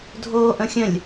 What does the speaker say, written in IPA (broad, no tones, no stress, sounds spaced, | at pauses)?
dʱ oː ʔ ə̃ xʲ ə̃ lʲ